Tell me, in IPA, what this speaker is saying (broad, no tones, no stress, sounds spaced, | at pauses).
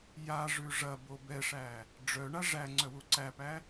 j a ʐ ʉ ʐ ɐ b o b ɛ ʂ æ | ɖ͡ʐ œ ɳ a ʐ æ ŋ͡ǀ œ w u ǀ æ p æ